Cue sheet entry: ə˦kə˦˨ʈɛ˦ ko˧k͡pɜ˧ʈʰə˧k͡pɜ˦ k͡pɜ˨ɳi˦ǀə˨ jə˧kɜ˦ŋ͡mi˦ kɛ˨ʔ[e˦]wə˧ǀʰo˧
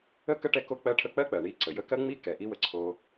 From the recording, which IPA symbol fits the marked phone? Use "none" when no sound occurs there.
i˦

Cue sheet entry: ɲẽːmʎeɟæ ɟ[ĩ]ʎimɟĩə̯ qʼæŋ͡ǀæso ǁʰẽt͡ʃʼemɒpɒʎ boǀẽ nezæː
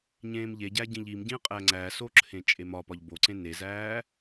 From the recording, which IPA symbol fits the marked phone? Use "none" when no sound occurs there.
ĩ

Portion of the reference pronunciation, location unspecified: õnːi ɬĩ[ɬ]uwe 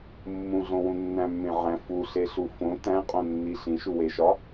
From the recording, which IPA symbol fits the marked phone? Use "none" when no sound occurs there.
ʃ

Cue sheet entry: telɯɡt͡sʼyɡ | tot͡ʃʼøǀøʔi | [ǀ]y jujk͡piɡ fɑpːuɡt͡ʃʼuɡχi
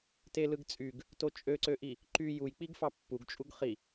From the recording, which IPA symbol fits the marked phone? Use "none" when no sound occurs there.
ǃ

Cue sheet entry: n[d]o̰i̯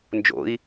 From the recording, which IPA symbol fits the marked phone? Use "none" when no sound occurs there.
d͡ʒ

